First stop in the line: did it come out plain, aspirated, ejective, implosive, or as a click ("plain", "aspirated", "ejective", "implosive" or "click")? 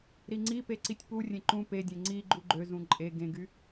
click